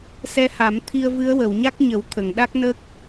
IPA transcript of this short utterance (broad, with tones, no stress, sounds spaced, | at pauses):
s ɛ˧ h a˨˩˦ m t̪ʰ i˧ ə̯ v ɨ˧˥ ə̯ w ə˨˩˨ w ɲ a˦˥ k̚ ɲ ə˨˩˦ w t̪ʰ ə˨˩˨ ŋ ɗ a˦˥ k̚ n ə˦˥ k̚